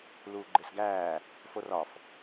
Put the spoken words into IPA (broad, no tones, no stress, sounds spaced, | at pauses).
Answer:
l uː ɡ͡ǃ e s ɡ æː | f o r ɒ f